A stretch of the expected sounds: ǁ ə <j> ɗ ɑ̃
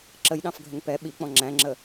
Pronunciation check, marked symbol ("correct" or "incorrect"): correct